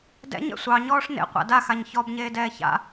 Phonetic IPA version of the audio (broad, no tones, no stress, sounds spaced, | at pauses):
d ɛ̰ ɲ ɛ̰ sʷ ɑ ɲ ɔː ʂ n ḛ qʷ a̰ d a x a ɲ ç ɔ b ɲ eː d ɛː ç a̰